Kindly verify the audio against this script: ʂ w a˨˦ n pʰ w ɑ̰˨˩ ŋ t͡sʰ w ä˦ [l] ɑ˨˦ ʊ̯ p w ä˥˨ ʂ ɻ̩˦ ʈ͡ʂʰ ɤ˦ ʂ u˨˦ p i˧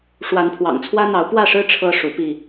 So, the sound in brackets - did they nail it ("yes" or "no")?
no